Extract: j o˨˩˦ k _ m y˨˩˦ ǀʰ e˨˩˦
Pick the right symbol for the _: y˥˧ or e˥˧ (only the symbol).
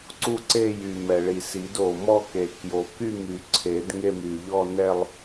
y˥˧